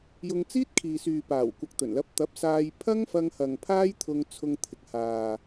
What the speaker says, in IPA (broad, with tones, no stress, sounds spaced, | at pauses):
j ʊ˧ ŋ t͡s iː˥ t̚ kʰ iː˨ s yː˨ p aː˨˩ w kʷ ɐ˨ k̚ t̪ ɵ˨˩ n l ɐ˨˥ p̚ t̪ ɐ˨˥ p̚ s aː˧ j pʰ ɐ˥ ŋ f ɐ˧ ŋ h ɐ˨ ŋ pʰ aː˥ j t̪ʰ ʊ˧ ŋ t͡sʰ ʊ˧ ŋ t̪ʰ ɪ˨ k̚ h aː˨